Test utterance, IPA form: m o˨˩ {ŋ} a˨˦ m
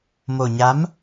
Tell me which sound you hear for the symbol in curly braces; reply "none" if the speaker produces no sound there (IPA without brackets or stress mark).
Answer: ɲ